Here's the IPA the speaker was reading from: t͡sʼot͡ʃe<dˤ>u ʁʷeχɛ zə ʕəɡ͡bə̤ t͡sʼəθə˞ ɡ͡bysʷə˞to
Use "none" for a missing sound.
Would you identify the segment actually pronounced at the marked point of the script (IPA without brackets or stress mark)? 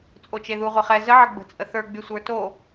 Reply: ð